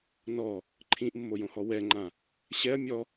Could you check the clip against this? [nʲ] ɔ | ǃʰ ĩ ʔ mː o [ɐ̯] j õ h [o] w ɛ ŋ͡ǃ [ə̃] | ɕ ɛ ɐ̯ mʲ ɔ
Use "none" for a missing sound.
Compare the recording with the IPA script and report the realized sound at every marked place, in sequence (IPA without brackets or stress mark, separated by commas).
n, none, ɔ, ã